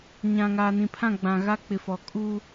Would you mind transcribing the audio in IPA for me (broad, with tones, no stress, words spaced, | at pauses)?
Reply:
ɲã˨ŋaː˨nĩ˨pʰã˦˨ ɡ͡bã˨ɣa˦k͡pɪ˨fɔ˨ kʼu˦